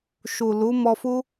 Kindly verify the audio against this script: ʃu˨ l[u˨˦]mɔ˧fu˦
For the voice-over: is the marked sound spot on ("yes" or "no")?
yes